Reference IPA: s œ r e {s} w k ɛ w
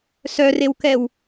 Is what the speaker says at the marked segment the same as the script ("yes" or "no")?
no